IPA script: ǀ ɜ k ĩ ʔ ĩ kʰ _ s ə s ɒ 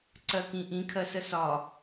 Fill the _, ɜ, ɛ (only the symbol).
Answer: ɜ